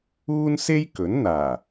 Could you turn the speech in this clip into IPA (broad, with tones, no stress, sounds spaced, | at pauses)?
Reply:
uː˥ n s e˥ j k ɵ˨˥ n n̪ aː˨˩